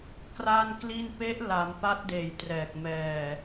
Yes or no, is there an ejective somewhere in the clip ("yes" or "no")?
no